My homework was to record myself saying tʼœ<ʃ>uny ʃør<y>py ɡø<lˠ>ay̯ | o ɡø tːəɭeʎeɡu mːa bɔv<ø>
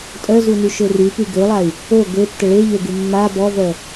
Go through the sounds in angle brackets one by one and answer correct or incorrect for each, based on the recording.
incorrect: z, correct, correct, incorrect: œ

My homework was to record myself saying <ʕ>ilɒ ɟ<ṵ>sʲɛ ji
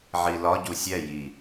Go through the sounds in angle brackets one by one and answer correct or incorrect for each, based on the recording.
correct, incorrect: u

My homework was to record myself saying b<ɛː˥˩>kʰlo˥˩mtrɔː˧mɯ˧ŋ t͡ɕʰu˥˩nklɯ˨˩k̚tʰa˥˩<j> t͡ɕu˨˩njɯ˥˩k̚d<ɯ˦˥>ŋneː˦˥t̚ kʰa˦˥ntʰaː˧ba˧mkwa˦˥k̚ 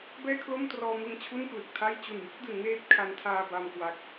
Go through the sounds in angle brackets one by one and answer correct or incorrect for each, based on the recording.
correct, correct, incorrect: ɯ˩˦

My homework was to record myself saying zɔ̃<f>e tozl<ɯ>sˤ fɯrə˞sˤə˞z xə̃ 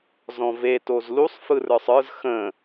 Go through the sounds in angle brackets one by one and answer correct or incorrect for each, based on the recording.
incorrect: v, incorrect: u

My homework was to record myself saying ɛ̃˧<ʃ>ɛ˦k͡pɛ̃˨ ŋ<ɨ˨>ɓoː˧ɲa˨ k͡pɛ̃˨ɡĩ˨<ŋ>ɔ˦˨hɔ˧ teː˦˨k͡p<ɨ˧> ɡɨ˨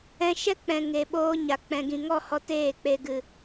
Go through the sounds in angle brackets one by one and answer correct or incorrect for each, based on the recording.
correct, incorrect: e˨, correct, incorrect: e˧

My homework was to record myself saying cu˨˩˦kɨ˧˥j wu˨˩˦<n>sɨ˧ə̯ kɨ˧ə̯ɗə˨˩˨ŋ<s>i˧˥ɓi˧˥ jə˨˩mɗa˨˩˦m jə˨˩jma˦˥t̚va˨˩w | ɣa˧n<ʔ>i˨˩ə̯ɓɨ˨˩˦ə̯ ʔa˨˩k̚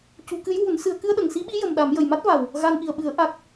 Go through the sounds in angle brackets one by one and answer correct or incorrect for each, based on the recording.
correct, correct, correct

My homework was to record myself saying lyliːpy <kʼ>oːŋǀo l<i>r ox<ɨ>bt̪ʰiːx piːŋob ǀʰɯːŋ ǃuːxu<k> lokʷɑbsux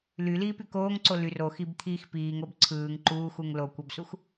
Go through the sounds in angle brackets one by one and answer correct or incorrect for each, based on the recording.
incorrect: k, incorrect: y, incorrect: i, incorrect: ŋ

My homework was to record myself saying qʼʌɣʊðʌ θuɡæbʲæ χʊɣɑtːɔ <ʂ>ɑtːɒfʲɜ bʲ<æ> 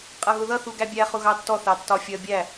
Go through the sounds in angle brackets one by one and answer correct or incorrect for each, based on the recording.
incorrect: θ, correct

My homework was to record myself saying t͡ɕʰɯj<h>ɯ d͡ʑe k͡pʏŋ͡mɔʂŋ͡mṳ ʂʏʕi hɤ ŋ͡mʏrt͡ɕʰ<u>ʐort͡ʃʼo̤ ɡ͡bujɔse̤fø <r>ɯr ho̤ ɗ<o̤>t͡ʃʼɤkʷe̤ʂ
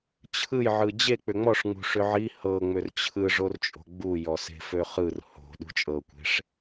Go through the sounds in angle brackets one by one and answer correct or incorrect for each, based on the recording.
incorrect: ʕ, incorrect: ɯ, incorrect: χ, incorrect: ṳ

